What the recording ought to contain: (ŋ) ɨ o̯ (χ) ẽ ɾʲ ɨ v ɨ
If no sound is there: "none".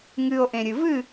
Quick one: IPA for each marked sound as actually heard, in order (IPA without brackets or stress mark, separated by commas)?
ŋ, ʔ